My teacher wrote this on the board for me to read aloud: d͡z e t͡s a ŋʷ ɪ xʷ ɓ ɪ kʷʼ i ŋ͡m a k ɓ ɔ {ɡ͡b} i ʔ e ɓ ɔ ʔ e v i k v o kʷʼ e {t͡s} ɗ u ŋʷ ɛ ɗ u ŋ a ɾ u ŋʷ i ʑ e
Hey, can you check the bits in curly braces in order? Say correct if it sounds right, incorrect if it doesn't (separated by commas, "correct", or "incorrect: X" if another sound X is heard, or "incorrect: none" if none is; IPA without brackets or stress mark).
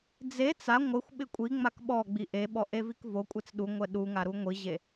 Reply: correct, correct